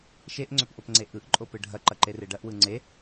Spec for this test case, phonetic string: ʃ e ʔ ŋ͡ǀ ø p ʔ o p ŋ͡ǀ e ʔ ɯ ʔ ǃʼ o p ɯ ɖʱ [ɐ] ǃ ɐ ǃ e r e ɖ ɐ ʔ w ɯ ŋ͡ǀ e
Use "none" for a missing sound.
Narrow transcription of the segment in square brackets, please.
ɐ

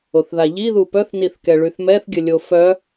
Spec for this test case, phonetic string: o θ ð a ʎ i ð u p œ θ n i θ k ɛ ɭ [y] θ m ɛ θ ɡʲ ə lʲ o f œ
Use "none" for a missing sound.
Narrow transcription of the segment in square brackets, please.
y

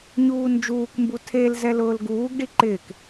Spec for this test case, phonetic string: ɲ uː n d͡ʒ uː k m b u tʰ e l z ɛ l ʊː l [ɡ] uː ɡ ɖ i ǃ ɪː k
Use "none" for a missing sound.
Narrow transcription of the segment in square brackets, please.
ɡ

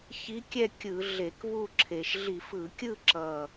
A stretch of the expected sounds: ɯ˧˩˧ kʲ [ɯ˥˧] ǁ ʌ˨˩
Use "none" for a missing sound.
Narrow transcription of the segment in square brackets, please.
ɯ˥˧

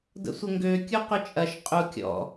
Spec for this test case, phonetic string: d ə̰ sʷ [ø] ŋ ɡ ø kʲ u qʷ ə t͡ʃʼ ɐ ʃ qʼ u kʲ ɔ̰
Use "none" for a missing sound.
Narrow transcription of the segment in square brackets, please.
ə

